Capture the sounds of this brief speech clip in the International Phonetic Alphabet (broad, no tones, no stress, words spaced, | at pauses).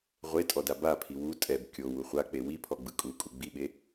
ʁʷetʼɔda bapʰi wu tʼɛb kʲowu χʷak͡pe wipʰɔɡ͡bɯ kʼukʼu ɡ͡biɓe